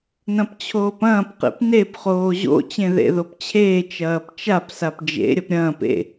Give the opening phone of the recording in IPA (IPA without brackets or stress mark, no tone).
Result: n